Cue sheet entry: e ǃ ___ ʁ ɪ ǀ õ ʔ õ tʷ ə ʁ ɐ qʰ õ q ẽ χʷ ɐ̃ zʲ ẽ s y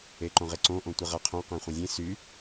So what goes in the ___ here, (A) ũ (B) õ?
B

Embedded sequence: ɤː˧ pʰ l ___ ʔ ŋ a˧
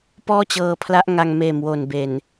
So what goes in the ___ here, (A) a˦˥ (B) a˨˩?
A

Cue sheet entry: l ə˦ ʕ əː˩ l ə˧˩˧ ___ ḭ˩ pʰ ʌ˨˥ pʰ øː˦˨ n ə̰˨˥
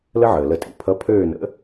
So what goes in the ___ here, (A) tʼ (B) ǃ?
A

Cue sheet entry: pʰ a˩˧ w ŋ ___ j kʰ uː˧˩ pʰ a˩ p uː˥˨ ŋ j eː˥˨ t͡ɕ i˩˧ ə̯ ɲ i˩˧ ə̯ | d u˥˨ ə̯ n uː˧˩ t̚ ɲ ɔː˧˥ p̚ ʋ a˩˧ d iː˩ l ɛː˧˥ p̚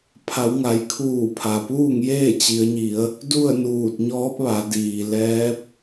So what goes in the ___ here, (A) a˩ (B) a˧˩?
A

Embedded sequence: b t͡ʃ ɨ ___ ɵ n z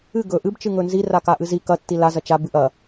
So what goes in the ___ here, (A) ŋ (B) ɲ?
A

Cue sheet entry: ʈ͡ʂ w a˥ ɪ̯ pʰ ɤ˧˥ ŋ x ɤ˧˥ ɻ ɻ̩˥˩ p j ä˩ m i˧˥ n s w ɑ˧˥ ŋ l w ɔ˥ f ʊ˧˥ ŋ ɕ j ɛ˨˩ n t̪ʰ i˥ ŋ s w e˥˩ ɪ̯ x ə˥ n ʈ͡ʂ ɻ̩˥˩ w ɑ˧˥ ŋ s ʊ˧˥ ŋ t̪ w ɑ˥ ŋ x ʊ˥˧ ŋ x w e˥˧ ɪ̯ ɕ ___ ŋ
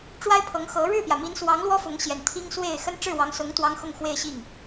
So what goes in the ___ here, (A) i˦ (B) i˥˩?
B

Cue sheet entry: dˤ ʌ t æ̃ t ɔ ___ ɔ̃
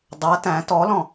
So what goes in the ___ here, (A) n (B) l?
B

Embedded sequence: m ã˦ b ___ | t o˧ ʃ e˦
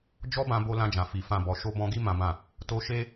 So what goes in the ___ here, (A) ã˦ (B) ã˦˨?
B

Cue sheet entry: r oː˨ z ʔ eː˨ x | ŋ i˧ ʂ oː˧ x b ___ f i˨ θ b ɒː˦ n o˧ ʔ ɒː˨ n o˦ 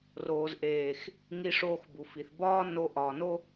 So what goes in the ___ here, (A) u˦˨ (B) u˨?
B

